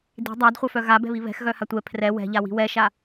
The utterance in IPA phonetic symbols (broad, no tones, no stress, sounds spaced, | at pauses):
d i̤ dˤ a d χʷ œ f œ ɣ a b ɛ̤ β i β ɛ̤ x ɣ œ h a tʷ ɛ pʰ r ɛ w ɛ̤ ʎ a w i̤ w ɛ ʃ a